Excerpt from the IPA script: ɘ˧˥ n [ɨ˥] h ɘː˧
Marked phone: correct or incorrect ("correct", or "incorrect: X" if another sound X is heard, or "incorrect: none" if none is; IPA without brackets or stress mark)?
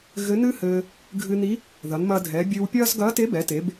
correct